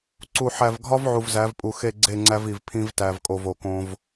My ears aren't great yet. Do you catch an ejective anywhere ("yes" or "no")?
yes